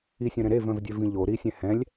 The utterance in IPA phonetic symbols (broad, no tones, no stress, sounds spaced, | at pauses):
i sʲ œ̃ ɾ ɛ̃ ɾ e v œ̃ v dʲ œ v ĩ ʎ o ɾ i sʲ ɛ̃ h ɛ̃ lʲ